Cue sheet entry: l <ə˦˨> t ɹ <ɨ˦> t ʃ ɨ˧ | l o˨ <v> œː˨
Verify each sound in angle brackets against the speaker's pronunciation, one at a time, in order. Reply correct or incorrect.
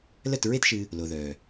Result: correct, incorrect: e˦, incorrect: ð

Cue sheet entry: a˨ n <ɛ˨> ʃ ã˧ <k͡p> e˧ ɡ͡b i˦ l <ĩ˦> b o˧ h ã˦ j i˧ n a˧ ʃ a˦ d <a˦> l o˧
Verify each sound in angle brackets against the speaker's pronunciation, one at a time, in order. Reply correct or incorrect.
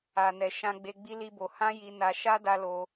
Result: correct, incorrect: ɡ͡b, incorrect: i˦, correct

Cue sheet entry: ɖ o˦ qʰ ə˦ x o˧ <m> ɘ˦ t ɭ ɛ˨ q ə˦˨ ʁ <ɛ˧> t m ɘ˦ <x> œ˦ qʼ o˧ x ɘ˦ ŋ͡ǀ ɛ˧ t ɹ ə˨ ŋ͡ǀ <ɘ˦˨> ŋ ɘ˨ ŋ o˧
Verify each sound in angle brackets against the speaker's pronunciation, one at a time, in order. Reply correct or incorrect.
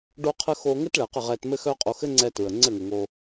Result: incorrect: ŋ, correct, correct, correct

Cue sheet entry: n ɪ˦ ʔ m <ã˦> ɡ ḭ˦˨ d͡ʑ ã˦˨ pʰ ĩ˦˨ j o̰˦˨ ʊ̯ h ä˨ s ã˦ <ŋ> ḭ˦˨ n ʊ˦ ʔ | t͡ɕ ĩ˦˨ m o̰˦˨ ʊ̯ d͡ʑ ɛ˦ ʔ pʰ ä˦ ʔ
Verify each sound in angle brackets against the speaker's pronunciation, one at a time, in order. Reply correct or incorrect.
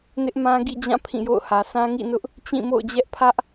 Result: correct, correct

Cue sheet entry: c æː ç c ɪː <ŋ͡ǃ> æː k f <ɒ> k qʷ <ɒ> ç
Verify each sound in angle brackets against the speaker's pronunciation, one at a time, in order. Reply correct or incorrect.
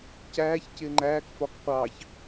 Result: correct, correct, incorrect: ɑ

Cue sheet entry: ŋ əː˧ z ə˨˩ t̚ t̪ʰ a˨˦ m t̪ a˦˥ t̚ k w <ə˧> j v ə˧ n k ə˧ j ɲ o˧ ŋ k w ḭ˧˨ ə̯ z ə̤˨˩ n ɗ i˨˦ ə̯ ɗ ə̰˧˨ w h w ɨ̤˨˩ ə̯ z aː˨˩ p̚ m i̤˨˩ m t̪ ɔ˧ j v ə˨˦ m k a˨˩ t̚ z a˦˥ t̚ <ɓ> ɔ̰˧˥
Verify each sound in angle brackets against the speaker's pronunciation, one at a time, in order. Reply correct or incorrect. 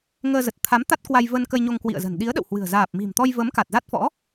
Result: incorrect: a˧, incorrect: f

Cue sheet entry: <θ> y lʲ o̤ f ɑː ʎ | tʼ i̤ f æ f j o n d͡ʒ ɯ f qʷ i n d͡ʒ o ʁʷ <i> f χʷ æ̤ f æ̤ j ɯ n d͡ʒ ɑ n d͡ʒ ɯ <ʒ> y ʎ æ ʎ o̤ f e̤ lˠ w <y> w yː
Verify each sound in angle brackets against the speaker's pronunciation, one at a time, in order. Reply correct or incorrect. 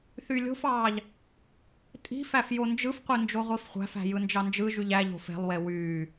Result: correct, correct, correct, incorrect: e

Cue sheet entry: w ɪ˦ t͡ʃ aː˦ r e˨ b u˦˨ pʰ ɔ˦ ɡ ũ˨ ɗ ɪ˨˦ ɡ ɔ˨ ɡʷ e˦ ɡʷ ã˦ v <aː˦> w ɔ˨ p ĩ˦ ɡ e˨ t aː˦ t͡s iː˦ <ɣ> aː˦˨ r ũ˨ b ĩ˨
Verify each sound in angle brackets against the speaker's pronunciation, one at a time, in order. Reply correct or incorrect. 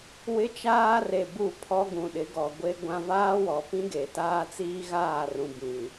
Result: correct, correct

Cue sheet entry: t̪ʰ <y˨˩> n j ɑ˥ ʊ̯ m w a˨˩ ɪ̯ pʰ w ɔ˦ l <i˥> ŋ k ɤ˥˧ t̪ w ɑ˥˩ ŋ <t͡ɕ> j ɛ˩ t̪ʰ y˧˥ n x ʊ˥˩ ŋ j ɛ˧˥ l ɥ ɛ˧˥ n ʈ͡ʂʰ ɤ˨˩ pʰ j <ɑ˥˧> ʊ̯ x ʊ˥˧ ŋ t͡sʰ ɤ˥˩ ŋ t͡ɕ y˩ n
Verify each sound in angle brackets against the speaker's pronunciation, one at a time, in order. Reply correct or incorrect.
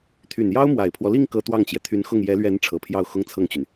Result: correct, incorrect: i˥˧, correct, correct

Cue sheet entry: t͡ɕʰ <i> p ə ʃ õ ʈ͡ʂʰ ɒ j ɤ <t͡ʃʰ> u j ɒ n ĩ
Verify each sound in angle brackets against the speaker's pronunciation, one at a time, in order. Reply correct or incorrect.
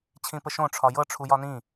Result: incorrect: ĩ, incorrect: ʈ͡ʂʰ

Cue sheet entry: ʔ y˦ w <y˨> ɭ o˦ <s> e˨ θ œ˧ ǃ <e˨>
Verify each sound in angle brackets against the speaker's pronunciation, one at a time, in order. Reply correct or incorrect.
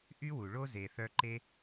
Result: incorrect: u˨, incorrect: z, incorrect: e˦

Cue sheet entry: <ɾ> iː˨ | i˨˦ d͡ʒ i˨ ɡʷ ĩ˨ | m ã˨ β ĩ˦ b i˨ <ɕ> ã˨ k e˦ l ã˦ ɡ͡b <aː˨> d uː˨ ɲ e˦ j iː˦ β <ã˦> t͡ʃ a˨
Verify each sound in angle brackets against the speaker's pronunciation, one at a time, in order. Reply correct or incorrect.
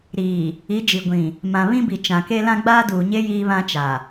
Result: correct, incorrect: t͡ʃ, incorrect: aː˦, correct

